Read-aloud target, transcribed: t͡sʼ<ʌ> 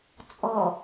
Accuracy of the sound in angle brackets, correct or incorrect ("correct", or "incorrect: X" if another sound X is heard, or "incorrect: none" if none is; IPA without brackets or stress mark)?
incorrect: ɔ